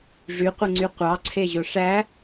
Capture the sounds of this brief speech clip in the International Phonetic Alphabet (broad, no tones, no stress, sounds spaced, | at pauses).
ʐ y qʷ ɯ ŋ͡ǀ y qʷ ɑ ǀʰ e ʑ o ʂ æ